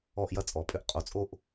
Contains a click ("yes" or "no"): no